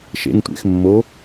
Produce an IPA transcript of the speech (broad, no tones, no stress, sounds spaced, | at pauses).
ʃ ḛ ŋ tʷ ḛ x mː o